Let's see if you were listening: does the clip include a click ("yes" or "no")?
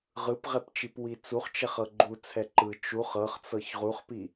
yes